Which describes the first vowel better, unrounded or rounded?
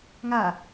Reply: unrounded